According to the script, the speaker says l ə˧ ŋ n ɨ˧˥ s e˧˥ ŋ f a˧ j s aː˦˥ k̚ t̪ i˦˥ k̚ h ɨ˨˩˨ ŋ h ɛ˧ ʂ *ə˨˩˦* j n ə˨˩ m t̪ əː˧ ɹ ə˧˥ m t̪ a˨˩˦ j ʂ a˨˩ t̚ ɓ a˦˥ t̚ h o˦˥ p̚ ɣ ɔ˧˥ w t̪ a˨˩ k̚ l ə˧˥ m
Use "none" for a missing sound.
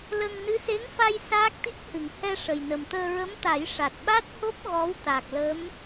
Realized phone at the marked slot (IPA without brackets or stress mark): ə˨˩